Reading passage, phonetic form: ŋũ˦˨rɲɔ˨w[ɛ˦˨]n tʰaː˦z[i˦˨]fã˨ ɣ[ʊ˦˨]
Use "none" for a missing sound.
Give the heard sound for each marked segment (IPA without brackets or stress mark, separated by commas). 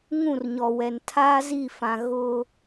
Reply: ɛ˨, i˦˨, ʊ˦